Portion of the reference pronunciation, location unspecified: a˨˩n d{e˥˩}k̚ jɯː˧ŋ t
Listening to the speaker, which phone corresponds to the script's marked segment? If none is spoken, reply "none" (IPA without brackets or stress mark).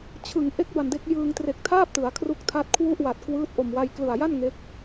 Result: e˦˥